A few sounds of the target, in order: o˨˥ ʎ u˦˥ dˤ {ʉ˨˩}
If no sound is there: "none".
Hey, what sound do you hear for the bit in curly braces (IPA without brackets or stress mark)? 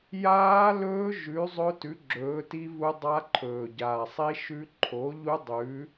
ʉ˨˥